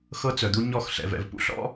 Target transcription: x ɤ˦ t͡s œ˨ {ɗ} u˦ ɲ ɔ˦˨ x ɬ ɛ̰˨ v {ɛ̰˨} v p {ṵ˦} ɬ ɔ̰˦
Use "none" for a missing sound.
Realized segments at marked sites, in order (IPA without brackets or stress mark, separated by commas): d̪, ɛ̰˨, ṵ˦